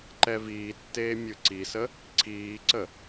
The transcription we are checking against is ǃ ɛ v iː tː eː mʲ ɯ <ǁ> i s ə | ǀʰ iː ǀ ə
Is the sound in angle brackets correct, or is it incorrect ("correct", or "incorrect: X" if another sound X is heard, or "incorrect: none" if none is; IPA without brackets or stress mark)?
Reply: incorrect: ǀ